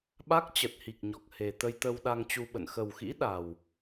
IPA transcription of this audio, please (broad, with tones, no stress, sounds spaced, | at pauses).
ɓ a˦˥ k̚ t͡ɕ ə˨˩ t̚ h i˨˩ k̚ ɲ ɔ˨˩ k̚ h e˨˩ t̪ ə˧ j t̪ ə˧ w ɗ a˧ ŋ t͡ɕ u˧ ɓ ə̰˧˨ n x ə˨˩ w x ḭ˧˥ ɗ a˨˩ w